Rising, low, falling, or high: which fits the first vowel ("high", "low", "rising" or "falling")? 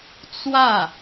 falling